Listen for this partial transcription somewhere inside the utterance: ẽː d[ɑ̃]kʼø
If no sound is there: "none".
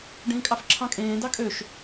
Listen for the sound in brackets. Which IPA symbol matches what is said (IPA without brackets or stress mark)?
ɑ